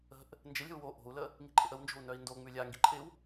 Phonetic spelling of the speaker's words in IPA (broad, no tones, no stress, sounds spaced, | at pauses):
ə̤ ʔ | n d͡ʒ ɪ lʲ ə̤ u̯ w o ʔ o̤ u̯ l ə | ŋ i̤ ǃʼ ɪ ʔ ə w n d͡ʒ o̤ u̯ n œ i̯ n d o ŋ͡m ʉ lʲ a ŋ ɡ i ǃʼ ɪ w